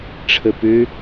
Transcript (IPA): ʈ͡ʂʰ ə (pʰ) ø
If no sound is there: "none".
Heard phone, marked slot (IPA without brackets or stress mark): p